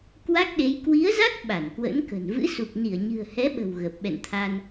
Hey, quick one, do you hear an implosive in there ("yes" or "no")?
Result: yes